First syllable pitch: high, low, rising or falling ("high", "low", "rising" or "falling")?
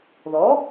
rising